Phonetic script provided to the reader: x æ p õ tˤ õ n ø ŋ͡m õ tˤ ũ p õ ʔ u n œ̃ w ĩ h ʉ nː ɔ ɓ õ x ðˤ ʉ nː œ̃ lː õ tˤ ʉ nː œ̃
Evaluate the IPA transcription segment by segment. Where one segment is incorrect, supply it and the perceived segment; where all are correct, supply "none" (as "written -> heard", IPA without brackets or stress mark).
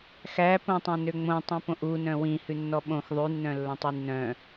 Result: none